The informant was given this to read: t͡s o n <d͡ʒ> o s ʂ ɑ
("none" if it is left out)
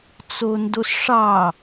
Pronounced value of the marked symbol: d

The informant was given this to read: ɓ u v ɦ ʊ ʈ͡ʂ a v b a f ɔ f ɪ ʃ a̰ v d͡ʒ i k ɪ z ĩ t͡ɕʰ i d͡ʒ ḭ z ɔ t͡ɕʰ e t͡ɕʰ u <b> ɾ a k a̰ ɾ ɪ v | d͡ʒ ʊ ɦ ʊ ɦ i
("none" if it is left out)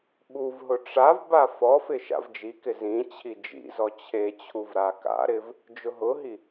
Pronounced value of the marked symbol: v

